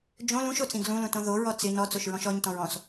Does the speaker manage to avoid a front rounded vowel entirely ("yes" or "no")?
yes